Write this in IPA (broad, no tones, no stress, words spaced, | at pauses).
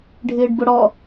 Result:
ɖʱɪːɖbʊɽɔ